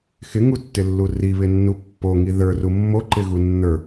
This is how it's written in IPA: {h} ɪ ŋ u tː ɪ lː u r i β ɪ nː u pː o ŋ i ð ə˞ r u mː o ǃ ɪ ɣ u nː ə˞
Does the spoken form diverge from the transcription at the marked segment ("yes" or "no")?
yes